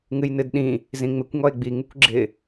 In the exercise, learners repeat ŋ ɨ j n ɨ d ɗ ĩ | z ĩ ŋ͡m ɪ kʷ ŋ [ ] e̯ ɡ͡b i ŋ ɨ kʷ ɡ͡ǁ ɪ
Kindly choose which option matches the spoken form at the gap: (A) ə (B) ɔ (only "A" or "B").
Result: B